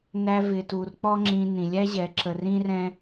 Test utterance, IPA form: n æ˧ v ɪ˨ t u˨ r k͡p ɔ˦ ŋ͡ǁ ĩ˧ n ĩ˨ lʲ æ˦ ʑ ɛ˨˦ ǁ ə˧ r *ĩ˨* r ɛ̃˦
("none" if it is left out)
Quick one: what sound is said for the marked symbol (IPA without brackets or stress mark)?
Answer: ĩ˦